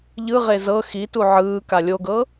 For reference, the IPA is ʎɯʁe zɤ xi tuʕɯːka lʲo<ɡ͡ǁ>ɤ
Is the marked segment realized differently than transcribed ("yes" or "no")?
yes